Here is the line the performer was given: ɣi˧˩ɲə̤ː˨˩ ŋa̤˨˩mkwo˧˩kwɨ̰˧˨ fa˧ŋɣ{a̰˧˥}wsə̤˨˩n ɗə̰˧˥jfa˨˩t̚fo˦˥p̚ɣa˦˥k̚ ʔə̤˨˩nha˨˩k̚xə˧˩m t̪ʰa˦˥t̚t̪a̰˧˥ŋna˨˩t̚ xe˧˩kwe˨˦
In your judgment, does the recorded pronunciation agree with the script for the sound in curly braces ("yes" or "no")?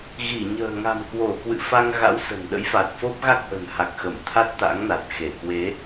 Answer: yes